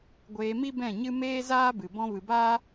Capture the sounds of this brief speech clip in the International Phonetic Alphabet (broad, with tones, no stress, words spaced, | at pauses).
ɡʷeː˧mi˦ bɛ̃˦˨ɲɨ˦ meː˦zaː˦bɨ˨ bɔ̃˧vɨ˨baː˦